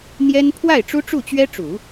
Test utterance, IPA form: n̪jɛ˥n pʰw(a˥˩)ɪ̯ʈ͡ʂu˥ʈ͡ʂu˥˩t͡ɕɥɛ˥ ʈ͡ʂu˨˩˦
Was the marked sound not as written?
no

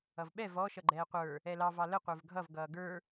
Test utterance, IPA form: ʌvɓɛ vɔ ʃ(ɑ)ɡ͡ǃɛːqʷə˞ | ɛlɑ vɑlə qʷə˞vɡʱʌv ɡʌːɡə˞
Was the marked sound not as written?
yes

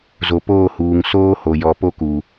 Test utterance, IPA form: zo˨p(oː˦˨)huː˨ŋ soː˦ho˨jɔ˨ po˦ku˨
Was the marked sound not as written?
no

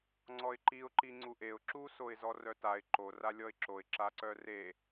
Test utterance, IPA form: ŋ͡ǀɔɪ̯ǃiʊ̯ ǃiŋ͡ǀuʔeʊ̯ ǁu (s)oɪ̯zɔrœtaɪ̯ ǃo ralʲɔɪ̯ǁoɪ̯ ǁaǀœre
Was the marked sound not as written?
no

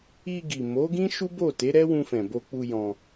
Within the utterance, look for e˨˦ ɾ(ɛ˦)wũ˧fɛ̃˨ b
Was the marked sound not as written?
no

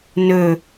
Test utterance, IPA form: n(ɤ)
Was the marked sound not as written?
yes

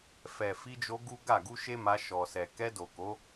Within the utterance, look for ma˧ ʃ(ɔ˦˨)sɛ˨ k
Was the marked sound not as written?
yes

